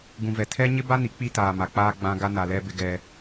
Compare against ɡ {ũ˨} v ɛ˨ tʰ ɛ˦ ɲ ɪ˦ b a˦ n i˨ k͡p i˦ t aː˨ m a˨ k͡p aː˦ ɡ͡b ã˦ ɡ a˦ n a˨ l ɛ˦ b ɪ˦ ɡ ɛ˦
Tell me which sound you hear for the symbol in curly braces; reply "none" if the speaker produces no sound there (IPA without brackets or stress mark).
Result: ũ˨